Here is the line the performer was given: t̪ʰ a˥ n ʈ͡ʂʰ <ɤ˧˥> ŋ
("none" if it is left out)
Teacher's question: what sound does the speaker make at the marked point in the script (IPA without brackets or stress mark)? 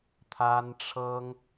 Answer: ɤ˥